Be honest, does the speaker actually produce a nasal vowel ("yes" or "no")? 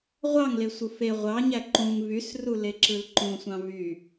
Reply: yes